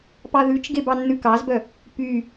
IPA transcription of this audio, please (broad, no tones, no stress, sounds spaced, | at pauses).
p ɑ ð ʉ t͡ʃ ɡ e b ɑ nː ʉ k ɑ z b œ | p y